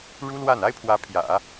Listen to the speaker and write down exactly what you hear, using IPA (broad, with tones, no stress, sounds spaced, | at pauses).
ɻ u˥ l w a˥˩ n a˥ ɪ̯ pʰ w ä˧˥ pʰ j ä̰˨˩˦